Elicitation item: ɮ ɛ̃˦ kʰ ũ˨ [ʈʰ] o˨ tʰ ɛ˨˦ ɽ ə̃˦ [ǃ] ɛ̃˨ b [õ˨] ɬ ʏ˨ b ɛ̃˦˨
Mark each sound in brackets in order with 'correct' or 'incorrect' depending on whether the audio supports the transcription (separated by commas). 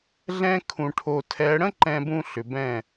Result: correct, correct, incorrect